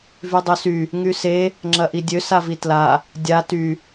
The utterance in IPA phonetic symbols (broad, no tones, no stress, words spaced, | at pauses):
vydˤøsy | ŋyse | ŋ͡ǁɐʔidʲø savitla | dʲa ty